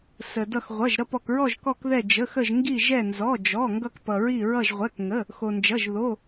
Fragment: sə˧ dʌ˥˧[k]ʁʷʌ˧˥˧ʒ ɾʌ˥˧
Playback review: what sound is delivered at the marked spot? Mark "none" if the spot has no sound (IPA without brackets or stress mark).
x